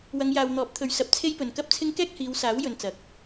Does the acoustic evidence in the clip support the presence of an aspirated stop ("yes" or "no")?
yes